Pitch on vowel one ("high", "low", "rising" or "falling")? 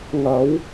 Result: rising